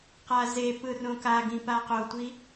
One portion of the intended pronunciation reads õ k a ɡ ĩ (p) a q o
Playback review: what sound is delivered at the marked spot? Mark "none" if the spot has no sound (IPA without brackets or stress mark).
p